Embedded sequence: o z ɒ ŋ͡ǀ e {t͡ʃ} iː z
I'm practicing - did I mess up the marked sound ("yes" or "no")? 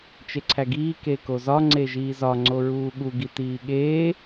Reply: yes